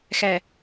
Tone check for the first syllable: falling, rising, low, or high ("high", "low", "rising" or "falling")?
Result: low